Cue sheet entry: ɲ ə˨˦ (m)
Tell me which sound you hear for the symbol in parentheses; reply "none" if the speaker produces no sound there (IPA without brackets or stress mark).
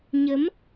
m